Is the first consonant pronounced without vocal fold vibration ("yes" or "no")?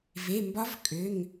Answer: no